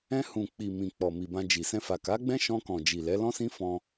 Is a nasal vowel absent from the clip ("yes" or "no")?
no